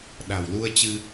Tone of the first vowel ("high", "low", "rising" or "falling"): low